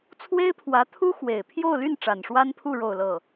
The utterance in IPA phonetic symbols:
t͡sʰ w e˥ ɪ̯ pʰ w ä˧˥ t̪ʰ u˥ x w e˨˩ ɪ̯ pʰ j o˥˧ ʊ̯ l y˥˩ n ʈ͡ʂ a˨˩ n ʂ w a˥ n pʰ u˥˧ ɻ o˥˧ ʊ̯ l ɤ˥˩

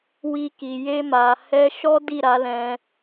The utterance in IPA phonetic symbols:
w i˧ k i˨ j e˧ m a˨ h ɛ˧ ʃ ɔ˦ d i˦˨ ɾ a˨˦ l ɛ̃˧

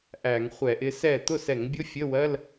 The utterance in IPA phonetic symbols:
ʔ æ˧˩˧ ŋ χʷ ɛ˧˩˧ ʔ ɪ˨˦ s ɛ˥˩ t̪ ʊ˥˩ s ɛ˧˩˧ ŋ bʲ ʊ˧˥˧ fʲ ə˧˥˧ w ɜ˧˥˧ l

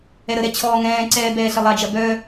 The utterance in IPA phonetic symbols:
ɛ ɾ ə ɾ ɛ t͡ɕʰ ɔː ŋ ɛ̃ː ǀ ɛː b ɛː ɬ ə lˠ a d͡ʒ ɐ b œ

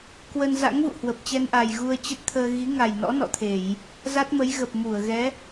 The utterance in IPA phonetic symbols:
k w ə˧ n z a̰˧˥ ŋ v ṵ˧˨ h w ə˨˩ p̚ t͡ɕ ɛ˧ n ʔ a˨˩ j ɣ u˧ ə̯ t͡ɕ ə˦˥ t̚ t̪ʰ əː˧ ɣ i˨˦ ŋ a˨˩ j n ɔ̰˧˥ n ɔ̰˧˨ t̪ʰ e˧˩˨ j | z a˦˥ t̚ m ə˨˦ j ɣ ə˨˩ p̚ m u˧˩ ə̯ ɣ ɛ˨˦

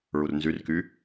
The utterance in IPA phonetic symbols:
ɹ u r n z y r k y

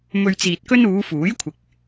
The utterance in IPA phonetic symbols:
m ɵ˧ ɥ t͡s iː˨ t̚ k ɵ˥ n uː˨˧ f uː˨˥ j kʷʰ ɪ˨ k̚

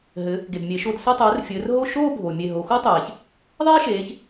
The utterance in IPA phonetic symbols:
ɦ ɘ˩˧ | ɡ e˩ d mʲ e˩˧ ʃ o˧˩ d s ɛ˥˧ tˤ ɘː˨˥ r fʲ ɘː˩˧ r ɦ o˥˧ ʃ oː˥˧ bʱ o˩ mʲ e˧˩ ɦ o˩˧ x o˥ tˤ eː˩ ç | ðˤ eː˥ ʃ eː˩˧ ç

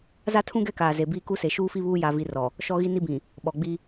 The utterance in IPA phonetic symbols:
z a˦ tʰ ũ˦ ɡ ɛ˦ k aː˨ z e˨ b iː˦ k u˦ s e˨ ʃ uː˦ f i˦ β uː˦ j a˦ v i˦ r ɔ˨ | ʃ ɔ˦ ɣ i˦ n i˦ b ĩ˨ | ɓ ɔ˨ ɡ͡b i˦

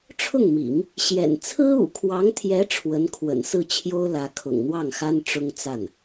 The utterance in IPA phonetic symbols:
ʈ͡ʂʰ ʊ˥˩ ŋ m ḭ˨˩˦ ŋ | ɕ j ɛ̰˨˩ n t͡sʰ ɹ̩˥ ṵ˨˩ kʰ w ɑ˧˥ ŋ t̪ʰ j ɛ˧˥ ʈ͡ʂʰ w ə˧˥ n kʰ w ə̰˨˩ n s ɹ̩˥˩ t͡ɕʰ j o˥ ʊ̯ l ä˧˥ kʰ ʊ̰˨˩ ŋ n̪ w ɑ˥˩ ŋ x a˥ n ʈ͡ʂ ʊ˥ ŋ t͡s a˥˩ n

